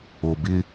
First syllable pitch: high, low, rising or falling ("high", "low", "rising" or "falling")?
low